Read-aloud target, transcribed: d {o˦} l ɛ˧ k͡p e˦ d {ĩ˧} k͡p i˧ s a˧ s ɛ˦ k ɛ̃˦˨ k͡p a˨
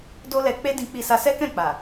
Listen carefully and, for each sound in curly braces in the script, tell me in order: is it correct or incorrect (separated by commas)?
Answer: correct, correct